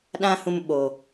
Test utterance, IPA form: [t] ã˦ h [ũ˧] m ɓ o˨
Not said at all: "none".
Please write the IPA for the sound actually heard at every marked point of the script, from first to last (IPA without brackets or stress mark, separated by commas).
ɗ, ũ˧